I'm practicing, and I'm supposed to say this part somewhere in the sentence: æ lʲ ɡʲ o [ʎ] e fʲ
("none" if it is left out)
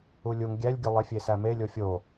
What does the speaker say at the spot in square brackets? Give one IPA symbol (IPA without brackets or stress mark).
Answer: lˠ